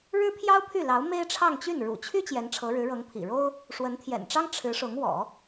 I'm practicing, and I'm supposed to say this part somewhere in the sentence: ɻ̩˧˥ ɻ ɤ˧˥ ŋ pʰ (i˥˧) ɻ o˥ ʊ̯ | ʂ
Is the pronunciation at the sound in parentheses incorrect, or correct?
incorrect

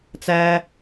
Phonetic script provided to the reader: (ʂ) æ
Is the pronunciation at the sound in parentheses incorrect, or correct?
incorrect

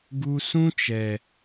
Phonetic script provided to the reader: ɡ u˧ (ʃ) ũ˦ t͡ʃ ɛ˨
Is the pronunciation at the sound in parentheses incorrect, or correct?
incorrect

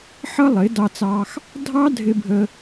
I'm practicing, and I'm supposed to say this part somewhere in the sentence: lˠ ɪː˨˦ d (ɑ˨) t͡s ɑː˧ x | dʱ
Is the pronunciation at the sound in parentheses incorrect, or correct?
incorrect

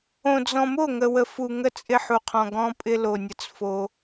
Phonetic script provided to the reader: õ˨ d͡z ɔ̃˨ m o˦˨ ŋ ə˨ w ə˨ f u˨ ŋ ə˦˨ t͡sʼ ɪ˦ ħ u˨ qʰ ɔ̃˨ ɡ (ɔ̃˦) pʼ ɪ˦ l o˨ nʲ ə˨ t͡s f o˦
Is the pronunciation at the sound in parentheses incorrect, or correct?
correct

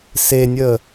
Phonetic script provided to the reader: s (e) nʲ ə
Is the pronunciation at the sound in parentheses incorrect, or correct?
correct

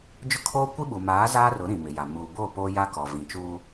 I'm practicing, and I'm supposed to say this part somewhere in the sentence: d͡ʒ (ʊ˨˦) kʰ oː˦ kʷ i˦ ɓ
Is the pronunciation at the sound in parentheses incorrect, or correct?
incorrect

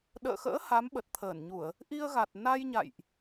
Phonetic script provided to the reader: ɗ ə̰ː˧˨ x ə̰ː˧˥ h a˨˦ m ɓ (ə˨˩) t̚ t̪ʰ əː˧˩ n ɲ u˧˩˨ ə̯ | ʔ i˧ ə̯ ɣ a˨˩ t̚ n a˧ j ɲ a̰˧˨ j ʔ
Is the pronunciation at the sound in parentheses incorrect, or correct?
correct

